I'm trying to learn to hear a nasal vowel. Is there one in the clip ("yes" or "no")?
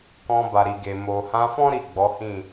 yes